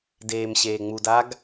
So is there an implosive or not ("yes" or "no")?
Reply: no